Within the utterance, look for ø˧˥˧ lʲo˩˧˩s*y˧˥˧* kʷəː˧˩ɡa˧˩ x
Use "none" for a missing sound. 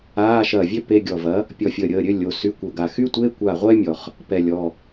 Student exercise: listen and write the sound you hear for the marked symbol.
y˧˥˧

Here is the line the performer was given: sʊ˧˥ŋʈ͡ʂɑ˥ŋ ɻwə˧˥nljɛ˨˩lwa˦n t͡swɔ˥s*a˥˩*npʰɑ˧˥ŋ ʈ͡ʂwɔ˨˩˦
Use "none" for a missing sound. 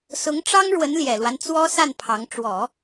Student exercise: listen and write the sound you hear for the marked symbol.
a˥˩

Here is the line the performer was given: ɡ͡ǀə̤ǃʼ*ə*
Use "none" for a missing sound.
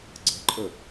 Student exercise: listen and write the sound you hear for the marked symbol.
ə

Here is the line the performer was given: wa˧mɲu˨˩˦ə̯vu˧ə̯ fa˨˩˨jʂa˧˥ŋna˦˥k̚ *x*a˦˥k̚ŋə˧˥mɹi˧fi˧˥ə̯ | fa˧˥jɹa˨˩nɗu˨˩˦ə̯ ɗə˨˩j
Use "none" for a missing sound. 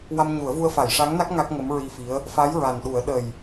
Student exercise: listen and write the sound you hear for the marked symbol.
ŋ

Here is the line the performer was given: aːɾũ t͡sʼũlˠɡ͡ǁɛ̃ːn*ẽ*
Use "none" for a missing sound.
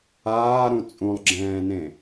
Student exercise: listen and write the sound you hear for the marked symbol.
ẽ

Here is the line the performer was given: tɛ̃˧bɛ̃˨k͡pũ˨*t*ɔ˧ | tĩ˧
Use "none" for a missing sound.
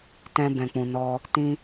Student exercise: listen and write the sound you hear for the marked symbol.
n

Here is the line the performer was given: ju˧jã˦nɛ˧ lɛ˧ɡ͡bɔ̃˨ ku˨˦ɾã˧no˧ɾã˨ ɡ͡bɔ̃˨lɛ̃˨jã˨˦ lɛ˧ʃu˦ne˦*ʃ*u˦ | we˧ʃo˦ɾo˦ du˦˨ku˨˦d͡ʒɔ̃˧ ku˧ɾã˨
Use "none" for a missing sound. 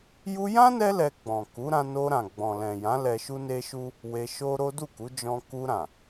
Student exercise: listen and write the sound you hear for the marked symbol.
ʃ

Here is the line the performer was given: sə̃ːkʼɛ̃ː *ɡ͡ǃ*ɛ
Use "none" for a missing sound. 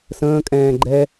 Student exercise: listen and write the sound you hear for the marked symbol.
ɡ͡ǃ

